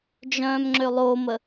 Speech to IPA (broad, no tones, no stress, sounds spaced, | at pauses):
d͡ʒ œ̃ː m ŋ͡ǁ ø lˠ o m ə